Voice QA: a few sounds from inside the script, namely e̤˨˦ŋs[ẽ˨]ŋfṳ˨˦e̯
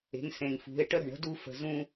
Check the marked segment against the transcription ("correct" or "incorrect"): correct